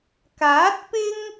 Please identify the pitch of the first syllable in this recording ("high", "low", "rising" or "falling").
rising